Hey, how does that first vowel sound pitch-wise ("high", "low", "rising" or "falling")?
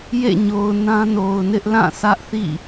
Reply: falling